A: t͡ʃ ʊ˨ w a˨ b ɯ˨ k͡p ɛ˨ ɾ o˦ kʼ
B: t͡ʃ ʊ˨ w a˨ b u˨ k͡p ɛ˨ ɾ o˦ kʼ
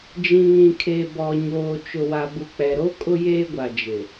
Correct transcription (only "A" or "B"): B